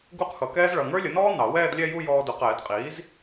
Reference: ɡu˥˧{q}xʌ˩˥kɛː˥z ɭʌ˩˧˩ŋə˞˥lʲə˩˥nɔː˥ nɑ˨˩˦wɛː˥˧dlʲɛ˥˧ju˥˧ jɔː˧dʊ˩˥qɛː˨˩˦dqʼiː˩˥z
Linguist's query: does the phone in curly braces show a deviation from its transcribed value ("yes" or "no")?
no